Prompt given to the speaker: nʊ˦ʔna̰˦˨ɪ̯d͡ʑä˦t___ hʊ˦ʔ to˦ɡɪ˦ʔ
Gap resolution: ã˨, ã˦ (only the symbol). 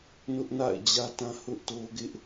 ã˦